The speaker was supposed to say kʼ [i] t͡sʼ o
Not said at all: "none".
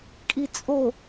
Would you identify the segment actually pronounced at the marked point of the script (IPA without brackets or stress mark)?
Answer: i